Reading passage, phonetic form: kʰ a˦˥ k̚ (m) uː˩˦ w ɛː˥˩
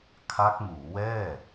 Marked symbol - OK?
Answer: yes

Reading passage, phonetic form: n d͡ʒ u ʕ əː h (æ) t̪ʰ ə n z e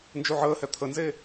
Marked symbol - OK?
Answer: no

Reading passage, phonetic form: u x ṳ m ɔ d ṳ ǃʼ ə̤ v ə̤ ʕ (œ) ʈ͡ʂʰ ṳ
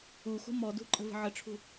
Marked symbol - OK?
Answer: no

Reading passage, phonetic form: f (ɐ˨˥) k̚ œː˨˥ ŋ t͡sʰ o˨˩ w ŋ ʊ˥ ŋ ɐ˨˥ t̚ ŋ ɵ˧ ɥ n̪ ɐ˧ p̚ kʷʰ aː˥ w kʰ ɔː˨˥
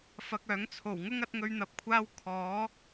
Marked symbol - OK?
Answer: no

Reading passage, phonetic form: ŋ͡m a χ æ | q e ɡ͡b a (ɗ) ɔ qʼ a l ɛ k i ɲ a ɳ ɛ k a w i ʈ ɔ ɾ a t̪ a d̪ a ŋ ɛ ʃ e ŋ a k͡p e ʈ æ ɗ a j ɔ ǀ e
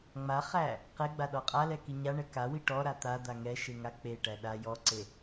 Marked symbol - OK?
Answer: yes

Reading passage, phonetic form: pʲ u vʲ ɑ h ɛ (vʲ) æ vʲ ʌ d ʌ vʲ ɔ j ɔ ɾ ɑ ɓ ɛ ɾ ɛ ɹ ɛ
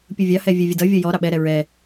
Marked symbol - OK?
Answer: yes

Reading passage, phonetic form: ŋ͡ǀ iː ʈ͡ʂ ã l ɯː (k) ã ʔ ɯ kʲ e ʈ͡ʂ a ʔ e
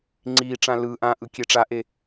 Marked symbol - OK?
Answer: no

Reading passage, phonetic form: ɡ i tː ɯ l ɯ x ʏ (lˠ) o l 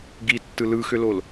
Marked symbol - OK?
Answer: no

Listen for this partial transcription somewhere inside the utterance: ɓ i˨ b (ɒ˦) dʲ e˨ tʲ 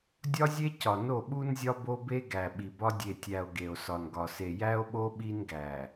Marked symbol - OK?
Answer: yes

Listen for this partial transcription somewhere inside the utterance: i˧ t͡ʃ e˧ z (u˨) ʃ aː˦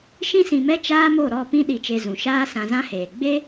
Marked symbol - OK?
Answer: no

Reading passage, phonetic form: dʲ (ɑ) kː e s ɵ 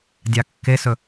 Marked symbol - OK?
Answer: yes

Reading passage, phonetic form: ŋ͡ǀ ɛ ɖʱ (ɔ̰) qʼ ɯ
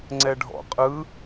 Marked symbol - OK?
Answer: yes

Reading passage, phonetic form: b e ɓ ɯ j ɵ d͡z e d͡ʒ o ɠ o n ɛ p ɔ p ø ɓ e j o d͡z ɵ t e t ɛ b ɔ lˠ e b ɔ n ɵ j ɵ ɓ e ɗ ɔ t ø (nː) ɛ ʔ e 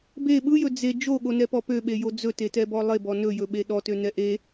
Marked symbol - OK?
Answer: no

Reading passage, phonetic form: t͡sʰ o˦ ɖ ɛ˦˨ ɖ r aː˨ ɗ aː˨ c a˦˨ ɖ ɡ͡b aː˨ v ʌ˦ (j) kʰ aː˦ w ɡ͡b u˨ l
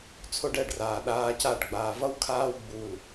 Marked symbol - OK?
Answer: no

